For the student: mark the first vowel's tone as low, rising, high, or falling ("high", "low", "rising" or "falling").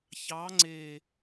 rising